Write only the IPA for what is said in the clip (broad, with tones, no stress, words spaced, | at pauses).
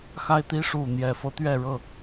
xa˦ɪ̯t̪i˦ ʂu˥˨ n̪jɛ˨˩fɤ˦t̪ɥɛ˥˨ɻɤ˥˨